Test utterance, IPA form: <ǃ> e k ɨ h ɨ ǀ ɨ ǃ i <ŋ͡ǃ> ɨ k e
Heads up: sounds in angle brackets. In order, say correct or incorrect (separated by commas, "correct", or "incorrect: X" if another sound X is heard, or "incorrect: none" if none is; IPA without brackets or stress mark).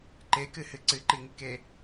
correct, incorrect: ŋ